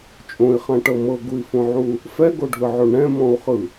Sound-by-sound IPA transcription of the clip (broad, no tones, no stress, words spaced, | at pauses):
t͡ʃʼõi̯χãʈɤ mɤɡui̯fõʕu | fɛɡoɖʱɯʕo ɳɛ̃mɔ̃u̯χɯ